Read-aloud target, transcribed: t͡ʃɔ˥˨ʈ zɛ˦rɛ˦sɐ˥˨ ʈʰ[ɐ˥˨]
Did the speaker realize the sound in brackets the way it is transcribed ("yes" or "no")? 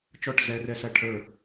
no